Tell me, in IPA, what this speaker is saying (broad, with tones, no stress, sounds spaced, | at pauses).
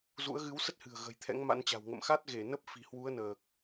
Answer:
z ṵ˧˥ ə̯ ɣ ɨ˨˦ w s ə˦˥ t̚ h ɨ̤˨˩ ə̯ ɣ ə̤˨˩ j t̪ʰ ɛ̰˧˥ ŋ m a̰˧˥ n t͡ɕ a̤˨˩ w ŋ ə̰˧˨ m x a˦˥ t̚ ɣ e˧˩ n ə˦˥ p̚ f i̤˨˩ h w u˨˦ ə̯ n əː˨˩ k̚